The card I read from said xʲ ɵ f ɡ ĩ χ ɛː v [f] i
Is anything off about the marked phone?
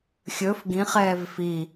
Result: no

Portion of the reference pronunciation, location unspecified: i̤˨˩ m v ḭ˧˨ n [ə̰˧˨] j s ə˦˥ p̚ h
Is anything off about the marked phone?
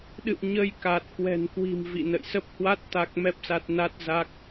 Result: no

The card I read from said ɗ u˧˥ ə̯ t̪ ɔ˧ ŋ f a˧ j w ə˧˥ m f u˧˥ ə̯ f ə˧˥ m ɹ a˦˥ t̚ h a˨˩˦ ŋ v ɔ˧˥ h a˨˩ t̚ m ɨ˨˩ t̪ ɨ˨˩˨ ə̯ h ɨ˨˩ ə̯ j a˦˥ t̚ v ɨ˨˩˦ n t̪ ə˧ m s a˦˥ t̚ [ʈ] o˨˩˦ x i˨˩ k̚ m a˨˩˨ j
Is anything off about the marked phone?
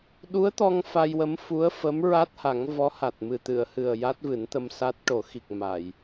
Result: no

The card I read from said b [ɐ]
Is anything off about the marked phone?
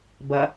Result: no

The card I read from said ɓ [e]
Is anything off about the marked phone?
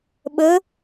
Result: yes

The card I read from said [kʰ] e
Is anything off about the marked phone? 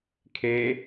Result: no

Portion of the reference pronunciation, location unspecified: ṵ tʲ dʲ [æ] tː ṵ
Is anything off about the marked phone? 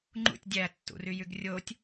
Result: no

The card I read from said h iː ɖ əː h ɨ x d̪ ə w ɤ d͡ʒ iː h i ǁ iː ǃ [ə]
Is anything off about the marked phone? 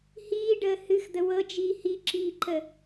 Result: no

